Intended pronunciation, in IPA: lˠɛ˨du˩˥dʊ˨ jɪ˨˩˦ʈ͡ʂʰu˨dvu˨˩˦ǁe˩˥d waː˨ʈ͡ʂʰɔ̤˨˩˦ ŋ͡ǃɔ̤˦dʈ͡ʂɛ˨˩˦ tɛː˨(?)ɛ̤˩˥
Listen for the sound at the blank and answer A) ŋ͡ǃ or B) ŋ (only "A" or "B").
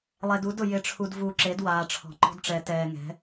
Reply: B